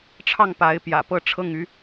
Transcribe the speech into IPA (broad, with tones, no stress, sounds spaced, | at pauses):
ʈ͡ʂʰ ɑ˥˩ ŋ p a˧˥ ɪ̯ p j ä̰˨˩ p ɤ˥˧ ʈ͡ʂʰ ɤ˥˩ ŋ y˥